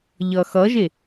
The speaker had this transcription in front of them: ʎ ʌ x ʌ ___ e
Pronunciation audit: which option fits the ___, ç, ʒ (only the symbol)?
ʒ